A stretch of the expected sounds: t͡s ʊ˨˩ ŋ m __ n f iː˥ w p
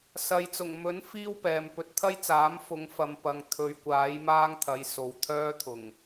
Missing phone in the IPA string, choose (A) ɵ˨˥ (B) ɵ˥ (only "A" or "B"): A